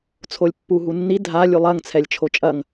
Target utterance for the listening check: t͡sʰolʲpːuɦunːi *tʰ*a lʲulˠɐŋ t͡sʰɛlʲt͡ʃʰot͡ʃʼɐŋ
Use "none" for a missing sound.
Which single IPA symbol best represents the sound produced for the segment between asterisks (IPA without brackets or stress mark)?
dʱ